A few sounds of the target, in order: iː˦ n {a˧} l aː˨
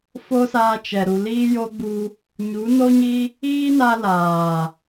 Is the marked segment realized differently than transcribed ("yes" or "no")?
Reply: no